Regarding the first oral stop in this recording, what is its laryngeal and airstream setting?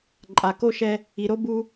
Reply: click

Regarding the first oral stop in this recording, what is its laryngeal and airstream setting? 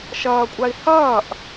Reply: ejective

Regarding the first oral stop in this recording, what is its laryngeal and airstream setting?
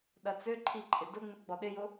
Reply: implosive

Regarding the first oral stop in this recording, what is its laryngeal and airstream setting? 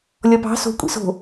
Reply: plain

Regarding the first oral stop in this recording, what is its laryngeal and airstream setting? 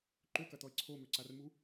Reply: click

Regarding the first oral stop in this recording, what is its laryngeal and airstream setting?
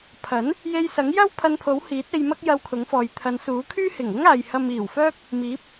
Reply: aspirated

